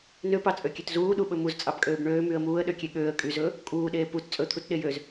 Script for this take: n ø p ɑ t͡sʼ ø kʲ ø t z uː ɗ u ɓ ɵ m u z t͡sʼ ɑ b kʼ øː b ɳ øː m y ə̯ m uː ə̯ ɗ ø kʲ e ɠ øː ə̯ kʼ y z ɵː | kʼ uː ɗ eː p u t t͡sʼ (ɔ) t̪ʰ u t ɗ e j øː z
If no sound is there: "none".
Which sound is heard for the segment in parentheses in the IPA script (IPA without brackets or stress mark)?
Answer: ɵ